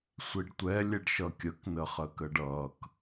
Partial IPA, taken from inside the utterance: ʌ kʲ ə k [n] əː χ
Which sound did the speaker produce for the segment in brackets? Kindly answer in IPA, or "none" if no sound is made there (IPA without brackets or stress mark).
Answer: n